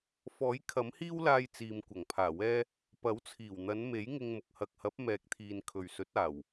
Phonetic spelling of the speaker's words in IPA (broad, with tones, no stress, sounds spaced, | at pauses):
f ɔː˨˥ j kʰ ɐ˨˥ m h iː˥ w l aː˧ j t͡s iː˨ m kʷ ɐ˨˩ ŋ pʰ aː˨˩ w ɛː˥ | p ɐ˨˥ w t͡sʰ iː˨˩ w n̪ ɐ˨˧ n m e˨˥ j ŋ ɪ˧ ŋ m ʊ˨ k̚ h ɐ˨ k̚ h ɐ˨˥ p̚ m ɛː˨ k̚ t̪ʰ iː˨ n kʰ ɵ˨ ɥ s ɵ˨˥ t̚ aː˨˩ w